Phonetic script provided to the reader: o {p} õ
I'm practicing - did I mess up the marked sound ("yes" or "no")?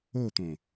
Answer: yes